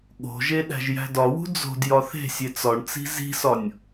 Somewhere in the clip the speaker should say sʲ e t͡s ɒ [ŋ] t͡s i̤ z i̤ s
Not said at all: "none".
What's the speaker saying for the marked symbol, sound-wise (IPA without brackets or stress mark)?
ɳ